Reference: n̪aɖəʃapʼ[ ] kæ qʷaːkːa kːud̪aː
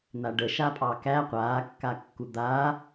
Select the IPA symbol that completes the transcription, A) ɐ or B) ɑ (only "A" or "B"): B